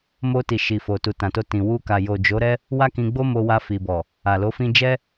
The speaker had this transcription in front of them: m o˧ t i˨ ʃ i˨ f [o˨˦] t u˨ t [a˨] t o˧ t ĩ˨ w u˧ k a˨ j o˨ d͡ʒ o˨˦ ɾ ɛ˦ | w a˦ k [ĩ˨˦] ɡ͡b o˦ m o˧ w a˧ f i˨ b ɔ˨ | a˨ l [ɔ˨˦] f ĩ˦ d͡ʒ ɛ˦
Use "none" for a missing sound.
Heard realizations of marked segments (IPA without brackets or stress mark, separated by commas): o˨, ã˨, ĩ˧, o˨˦